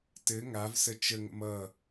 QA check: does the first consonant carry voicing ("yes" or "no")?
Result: no